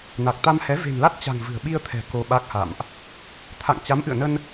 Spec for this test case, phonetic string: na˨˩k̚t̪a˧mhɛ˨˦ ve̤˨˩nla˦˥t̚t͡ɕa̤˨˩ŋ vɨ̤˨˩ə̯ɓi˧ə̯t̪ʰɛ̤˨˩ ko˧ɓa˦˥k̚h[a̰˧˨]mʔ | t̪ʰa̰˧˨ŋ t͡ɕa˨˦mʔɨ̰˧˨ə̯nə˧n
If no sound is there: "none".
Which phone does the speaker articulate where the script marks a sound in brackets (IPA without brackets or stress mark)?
a̰˧˨